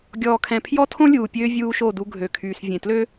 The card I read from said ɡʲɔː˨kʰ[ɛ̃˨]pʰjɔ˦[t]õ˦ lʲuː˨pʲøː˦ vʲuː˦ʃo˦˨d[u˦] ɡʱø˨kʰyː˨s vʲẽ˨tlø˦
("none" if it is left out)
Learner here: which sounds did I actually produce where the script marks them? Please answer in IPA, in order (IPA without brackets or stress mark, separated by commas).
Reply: ɛ̃˨, tʰ, u˦